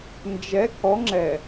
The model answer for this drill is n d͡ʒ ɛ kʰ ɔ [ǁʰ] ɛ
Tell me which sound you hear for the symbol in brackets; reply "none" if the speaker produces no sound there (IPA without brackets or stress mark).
ŋ͡ǁ